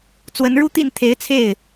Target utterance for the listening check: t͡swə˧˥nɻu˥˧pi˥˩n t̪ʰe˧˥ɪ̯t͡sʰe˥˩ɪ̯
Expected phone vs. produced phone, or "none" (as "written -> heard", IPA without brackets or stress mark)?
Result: p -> t̪